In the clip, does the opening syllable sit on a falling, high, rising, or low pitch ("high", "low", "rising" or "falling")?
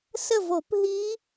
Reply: falling